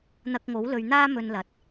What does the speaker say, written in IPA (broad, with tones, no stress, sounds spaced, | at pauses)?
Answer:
n̪ ɐ˧ k̚ ŋ o˨˥ w l ɵ˧ ɥ n̪ aː˥ m ɵ˧ n l ɐ˨ t̚